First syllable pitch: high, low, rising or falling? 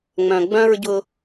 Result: low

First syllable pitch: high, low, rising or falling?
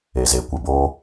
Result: low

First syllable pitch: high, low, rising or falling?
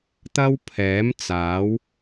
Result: high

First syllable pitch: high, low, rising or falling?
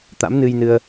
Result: rising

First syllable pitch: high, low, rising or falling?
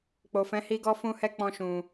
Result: low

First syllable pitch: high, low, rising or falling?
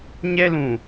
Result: high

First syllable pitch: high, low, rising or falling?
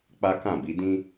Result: high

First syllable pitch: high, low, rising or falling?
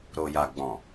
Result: low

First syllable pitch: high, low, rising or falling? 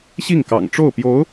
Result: falling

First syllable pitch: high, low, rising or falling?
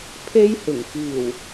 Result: high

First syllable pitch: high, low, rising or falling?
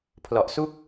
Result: low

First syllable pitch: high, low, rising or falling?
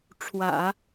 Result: low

